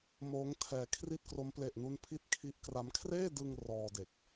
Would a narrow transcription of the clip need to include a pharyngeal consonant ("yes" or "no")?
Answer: no